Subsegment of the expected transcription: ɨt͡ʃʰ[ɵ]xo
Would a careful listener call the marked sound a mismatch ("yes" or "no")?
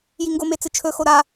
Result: no